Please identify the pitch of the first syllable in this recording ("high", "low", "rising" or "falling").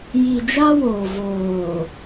low